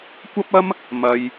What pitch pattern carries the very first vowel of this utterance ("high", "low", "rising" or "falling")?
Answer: high